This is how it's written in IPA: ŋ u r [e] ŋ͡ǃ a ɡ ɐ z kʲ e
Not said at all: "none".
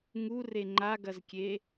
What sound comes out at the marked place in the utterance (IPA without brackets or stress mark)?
e